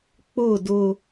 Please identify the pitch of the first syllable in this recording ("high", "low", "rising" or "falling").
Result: falling